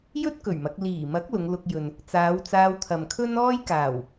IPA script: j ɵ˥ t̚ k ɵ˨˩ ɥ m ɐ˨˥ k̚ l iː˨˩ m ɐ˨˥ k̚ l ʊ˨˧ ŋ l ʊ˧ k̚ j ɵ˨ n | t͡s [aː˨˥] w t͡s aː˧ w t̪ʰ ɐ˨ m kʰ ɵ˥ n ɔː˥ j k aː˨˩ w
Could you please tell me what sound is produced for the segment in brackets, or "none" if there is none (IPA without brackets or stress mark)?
aː˨˧